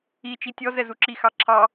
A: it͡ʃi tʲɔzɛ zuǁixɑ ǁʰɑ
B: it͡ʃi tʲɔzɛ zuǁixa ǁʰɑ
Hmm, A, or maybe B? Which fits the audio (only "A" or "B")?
A